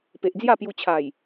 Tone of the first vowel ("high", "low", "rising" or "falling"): low